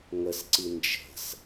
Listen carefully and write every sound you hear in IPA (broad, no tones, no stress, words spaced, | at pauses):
ŋəsǀi nd͡ʒə̤s